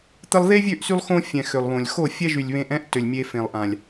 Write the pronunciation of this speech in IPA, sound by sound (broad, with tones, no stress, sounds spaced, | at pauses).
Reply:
t̪ ə˧ lˠ ð e˦ vʲ ø˦˨ ʔ s y˦ lˠ x õ˦ fʲ ɛ̃˨ x ø˨ lˠ β õ˨ lʲ x o˦˨ fʲ ɛ˦ ʒ y˨ lʲ β ẽ˧ ʔ ɛ̃˦ ʔ t ø˨ lʲ mʲ e˧ f ẽ˨ lˠ ʔ ã˨ lʲ